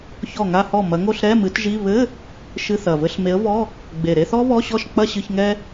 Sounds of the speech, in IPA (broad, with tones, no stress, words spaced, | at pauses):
çɔ˥˩ŋa˥˧hɔ˥˩ mɐ˨˥ŋo˥˧ɬ ɾɛ˧˥˧mɨ˨˥tʒi˧˥˧ βɘ˧˥˧ | ʃɨ˧˥˧θɐ˨˩ vɘ˧˥˧ɬme˨˥ə̯vɔ˧˥˧ | ɡ͡be˨˩ɾe˥˧θɔ˥ βɔ˧˥˧ɕɔ˥˩ʃ k͡pɐ˥˧ɕɨ˧˥˧ç ŋɛ˥